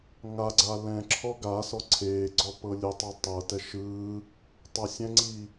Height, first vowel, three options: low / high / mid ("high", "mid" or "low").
low